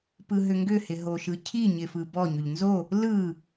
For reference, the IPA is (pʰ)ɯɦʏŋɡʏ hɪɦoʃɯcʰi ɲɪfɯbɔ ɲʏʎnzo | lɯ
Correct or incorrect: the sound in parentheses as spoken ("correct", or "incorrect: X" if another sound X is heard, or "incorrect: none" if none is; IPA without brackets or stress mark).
incorrect: p